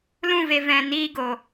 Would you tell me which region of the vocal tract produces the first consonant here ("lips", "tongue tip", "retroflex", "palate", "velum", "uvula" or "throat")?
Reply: tongue tip